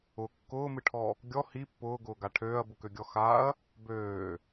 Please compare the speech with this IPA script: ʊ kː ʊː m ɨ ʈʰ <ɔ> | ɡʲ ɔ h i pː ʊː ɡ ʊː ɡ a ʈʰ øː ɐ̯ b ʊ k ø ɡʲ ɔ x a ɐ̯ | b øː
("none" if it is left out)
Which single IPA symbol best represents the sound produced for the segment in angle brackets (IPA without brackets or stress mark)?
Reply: ɔ